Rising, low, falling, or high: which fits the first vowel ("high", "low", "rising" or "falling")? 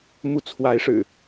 rising